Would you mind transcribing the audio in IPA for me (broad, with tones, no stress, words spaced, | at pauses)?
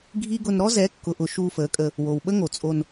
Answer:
ɡʱi˦ɡʊ˧n ɾɔ˦zɛ˨˦kːʊː˨ʔʊ˨ ʃuː˧fəː˨˦kʼə˧ | wo˨wɓə˦ŋo˨t͡sʼo˧n